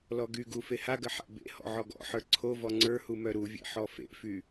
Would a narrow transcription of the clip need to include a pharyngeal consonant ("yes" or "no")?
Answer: yes